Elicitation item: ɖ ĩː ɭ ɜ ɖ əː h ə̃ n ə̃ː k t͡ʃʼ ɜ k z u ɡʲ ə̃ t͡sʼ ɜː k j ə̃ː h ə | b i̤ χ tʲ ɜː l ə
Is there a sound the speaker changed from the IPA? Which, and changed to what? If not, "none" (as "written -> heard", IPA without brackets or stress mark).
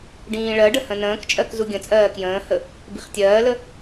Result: əː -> ə